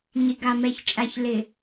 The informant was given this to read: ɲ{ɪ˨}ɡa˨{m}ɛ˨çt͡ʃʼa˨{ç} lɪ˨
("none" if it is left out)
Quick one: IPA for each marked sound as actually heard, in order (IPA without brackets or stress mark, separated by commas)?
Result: ɪ˨, m, ç